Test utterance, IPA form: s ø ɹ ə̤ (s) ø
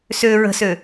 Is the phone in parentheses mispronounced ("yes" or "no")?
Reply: no